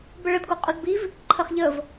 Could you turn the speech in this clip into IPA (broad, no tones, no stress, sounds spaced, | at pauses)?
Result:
b ə ɭ ə d ɡ o qʼ o d b i v | ǃʰ ə χ ʎ ə v